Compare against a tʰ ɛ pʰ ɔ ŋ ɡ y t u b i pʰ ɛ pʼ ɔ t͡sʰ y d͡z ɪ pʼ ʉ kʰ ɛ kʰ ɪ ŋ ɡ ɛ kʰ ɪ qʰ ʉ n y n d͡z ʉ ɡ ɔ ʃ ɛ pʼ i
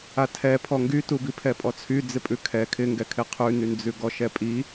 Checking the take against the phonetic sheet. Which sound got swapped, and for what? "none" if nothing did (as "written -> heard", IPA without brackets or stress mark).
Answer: none